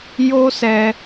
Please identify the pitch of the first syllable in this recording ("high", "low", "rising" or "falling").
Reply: high